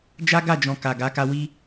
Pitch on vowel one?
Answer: high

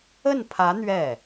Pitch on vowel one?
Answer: falling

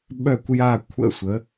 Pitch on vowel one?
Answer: falling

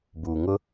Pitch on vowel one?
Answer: low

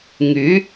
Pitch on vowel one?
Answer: rising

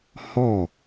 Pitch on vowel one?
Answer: falling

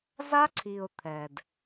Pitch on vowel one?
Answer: high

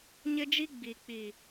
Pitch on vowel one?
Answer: high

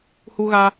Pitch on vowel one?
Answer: high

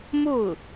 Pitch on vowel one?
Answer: falling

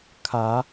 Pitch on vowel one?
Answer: rising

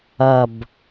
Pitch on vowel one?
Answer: low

